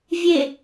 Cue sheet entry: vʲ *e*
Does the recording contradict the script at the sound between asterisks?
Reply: no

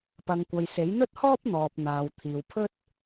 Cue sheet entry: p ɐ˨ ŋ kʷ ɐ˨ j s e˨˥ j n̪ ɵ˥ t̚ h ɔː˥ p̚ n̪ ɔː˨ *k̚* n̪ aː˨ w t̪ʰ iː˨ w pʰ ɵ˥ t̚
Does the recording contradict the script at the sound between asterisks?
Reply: yes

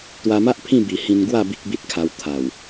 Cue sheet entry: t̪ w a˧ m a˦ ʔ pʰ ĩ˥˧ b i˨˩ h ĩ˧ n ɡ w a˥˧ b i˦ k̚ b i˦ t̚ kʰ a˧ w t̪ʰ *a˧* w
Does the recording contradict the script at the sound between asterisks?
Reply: yes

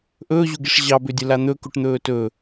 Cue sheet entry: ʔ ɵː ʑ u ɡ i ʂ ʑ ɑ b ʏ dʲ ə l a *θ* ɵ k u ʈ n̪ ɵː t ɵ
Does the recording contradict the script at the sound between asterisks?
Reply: yes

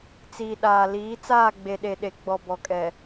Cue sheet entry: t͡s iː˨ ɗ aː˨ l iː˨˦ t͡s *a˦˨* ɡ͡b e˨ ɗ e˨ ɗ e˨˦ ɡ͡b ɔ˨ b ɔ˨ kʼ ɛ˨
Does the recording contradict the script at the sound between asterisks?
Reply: yes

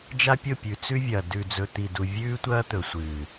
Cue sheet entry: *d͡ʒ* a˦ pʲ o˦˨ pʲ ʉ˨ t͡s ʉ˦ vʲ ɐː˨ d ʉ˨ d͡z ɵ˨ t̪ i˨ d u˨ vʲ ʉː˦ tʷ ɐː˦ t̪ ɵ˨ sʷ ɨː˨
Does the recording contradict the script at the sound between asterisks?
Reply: no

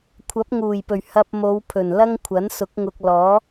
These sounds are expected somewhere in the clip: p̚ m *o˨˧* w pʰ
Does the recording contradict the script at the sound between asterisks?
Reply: no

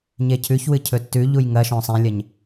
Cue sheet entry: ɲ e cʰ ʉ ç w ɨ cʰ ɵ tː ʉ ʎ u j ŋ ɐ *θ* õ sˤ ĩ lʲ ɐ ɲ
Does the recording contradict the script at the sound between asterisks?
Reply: yes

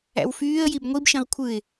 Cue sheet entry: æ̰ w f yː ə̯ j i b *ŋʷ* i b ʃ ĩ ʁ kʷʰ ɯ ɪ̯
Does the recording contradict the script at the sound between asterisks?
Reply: no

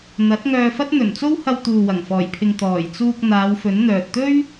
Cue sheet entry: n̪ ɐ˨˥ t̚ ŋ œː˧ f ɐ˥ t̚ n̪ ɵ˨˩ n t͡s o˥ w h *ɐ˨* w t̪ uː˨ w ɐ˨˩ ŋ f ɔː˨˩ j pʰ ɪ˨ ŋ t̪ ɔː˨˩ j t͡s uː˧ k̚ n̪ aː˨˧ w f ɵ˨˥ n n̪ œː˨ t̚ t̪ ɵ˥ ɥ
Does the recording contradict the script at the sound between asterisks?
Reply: yes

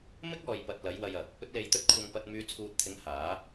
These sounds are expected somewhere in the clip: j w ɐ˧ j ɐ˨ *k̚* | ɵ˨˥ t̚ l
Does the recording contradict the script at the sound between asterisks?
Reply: no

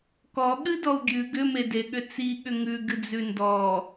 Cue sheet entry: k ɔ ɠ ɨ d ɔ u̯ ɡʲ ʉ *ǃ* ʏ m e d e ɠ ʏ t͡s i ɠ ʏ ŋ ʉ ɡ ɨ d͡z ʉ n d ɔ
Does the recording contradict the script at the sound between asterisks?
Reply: yes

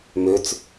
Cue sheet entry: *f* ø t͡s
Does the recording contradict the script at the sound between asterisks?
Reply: yes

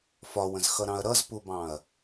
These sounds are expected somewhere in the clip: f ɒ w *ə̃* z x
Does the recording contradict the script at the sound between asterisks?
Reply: no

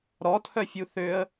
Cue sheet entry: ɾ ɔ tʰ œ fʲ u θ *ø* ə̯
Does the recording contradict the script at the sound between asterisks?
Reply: no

